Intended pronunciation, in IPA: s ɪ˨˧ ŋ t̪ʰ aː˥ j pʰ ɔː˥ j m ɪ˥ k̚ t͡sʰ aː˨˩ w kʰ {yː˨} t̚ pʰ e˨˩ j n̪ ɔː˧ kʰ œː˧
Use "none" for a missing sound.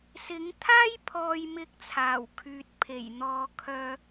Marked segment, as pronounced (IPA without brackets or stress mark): yː˨